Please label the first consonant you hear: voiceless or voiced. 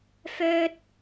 voiceless